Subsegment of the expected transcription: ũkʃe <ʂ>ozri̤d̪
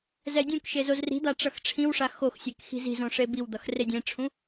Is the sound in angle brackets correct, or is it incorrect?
incorrect: z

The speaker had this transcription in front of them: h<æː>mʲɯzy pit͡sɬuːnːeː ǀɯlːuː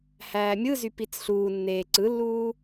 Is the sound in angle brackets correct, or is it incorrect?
correct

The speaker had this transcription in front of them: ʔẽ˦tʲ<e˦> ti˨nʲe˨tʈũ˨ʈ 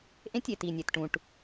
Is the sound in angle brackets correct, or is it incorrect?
incorrect: e˨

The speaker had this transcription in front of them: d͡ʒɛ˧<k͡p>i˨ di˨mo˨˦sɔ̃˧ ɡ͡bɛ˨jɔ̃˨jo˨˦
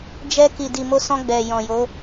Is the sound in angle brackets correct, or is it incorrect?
incorrect: k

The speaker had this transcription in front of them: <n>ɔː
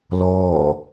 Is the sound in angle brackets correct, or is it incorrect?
incorrect: l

